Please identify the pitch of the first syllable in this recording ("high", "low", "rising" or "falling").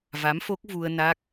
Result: rising